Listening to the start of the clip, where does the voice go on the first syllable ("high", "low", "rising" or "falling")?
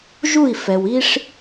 falling